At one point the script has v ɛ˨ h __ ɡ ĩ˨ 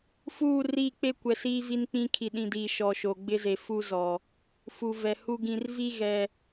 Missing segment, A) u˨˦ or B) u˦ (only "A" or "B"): B